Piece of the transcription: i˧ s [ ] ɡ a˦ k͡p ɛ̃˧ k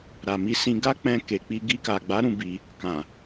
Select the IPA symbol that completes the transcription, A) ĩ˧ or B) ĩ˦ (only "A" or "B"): A